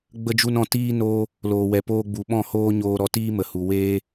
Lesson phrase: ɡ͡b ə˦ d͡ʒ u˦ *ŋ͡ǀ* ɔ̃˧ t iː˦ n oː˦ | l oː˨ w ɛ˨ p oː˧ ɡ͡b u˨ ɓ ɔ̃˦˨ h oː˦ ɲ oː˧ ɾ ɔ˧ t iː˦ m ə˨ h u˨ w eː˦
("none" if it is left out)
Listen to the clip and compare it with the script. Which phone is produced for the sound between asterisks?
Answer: n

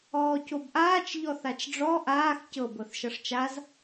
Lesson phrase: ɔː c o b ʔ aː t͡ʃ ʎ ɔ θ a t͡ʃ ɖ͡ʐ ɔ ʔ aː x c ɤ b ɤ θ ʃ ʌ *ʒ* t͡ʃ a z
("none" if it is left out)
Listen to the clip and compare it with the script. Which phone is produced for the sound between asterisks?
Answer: ʂ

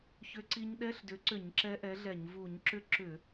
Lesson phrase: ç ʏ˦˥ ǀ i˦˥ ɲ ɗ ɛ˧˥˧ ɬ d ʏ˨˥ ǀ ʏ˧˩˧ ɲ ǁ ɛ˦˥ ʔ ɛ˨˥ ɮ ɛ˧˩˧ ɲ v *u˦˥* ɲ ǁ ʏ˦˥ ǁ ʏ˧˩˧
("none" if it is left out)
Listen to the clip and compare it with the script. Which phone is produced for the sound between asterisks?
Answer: u˧˩˧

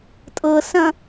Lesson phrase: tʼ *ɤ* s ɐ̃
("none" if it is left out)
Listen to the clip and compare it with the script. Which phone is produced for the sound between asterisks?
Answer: ɤ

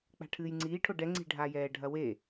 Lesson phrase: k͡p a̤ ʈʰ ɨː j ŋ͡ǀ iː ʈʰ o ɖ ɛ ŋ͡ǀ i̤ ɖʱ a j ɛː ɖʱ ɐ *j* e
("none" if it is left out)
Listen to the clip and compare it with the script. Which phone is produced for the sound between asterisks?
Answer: w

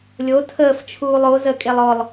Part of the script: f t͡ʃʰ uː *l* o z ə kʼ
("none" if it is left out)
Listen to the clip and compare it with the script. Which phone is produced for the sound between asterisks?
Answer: lˠ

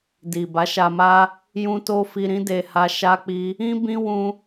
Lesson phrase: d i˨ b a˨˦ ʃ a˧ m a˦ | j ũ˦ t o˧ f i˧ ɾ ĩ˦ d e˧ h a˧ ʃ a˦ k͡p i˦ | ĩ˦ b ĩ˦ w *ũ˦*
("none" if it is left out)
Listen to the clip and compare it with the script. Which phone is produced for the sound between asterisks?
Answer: ũ˦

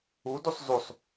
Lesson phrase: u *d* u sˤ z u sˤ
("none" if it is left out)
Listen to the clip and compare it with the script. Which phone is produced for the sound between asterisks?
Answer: d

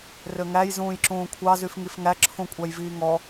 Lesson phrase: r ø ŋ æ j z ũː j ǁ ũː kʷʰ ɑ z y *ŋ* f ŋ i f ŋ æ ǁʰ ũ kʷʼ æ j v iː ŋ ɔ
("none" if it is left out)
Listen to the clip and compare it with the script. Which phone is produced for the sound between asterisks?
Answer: none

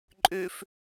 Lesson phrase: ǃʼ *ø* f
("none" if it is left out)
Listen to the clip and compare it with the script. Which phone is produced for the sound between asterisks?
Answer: ø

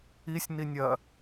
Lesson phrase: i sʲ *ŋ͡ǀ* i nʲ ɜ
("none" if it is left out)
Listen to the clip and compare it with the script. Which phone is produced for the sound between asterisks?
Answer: n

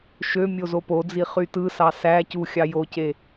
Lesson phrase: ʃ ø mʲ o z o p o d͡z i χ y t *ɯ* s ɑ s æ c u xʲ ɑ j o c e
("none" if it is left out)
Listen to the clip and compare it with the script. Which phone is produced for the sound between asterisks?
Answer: ɯ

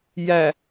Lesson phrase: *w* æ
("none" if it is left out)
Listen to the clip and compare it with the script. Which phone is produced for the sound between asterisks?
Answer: j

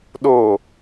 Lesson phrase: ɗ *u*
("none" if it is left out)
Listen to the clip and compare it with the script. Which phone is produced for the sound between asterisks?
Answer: o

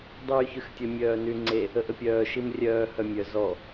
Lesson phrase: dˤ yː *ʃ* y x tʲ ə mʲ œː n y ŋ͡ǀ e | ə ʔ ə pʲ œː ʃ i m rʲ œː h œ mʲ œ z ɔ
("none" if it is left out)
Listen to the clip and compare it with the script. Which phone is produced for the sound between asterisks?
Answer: ç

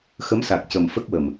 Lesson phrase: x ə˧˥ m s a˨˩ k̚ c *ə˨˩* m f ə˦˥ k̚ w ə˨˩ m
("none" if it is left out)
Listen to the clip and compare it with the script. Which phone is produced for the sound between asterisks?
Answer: ə˨˩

